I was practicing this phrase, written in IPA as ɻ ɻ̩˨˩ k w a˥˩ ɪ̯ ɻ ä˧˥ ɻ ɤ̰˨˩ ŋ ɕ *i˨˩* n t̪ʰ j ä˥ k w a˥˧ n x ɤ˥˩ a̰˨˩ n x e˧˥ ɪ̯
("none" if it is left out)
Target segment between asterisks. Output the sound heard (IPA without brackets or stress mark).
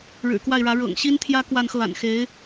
i˥